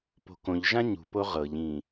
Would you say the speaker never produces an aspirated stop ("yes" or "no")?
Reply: yes